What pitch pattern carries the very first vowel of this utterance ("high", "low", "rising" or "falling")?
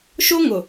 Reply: high